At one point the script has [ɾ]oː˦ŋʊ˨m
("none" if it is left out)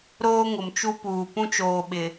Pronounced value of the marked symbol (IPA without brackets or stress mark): ɾ